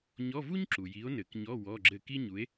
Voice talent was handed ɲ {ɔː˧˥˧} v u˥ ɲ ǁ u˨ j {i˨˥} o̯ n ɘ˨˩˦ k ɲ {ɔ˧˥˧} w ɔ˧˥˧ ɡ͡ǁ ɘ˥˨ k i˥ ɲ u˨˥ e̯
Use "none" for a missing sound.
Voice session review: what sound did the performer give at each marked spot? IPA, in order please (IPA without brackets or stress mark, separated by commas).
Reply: ɔ˧˥˧, i˨˥, ɔ˧˥˧